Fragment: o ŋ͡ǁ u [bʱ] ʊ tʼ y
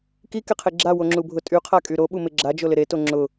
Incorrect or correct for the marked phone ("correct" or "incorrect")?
correct